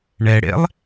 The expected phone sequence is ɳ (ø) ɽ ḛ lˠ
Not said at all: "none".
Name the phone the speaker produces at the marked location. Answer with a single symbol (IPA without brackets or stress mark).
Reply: ɛ